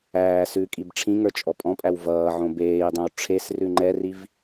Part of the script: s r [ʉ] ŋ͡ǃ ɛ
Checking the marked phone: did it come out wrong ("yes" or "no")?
no